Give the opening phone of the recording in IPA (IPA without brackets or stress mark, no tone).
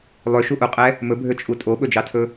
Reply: lˠ